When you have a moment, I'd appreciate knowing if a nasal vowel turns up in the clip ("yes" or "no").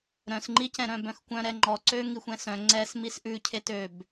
yes